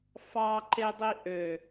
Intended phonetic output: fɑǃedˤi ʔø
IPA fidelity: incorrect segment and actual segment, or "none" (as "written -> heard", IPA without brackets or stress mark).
none